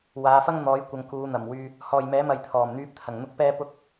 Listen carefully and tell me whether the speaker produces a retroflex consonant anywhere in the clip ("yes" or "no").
no